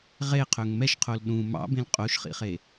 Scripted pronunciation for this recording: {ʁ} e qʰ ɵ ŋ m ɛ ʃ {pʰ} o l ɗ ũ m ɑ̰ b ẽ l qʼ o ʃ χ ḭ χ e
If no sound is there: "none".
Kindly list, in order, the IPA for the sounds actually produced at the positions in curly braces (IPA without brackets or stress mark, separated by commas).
ʁ, qʰ